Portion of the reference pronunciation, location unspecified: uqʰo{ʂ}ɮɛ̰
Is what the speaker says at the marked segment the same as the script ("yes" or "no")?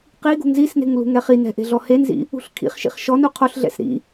no